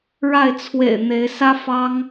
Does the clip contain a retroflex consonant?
yes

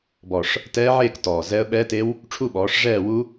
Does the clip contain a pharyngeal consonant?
yes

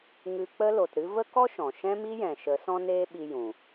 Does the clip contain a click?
no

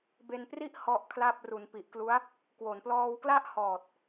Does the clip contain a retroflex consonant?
no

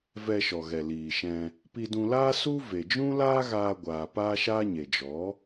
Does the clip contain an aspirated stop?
no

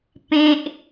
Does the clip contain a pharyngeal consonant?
no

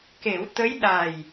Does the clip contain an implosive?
yes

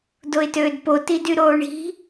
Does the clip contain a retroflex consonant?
yes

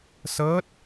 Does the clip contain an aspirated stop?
no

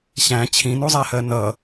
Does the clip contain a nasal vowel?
yes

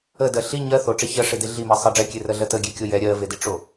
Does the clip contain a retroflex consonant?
yes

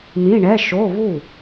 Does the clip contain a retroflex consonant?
yes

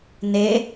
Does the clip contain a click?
no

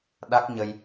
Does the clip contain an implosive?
yes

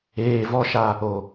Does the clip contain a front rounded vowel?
no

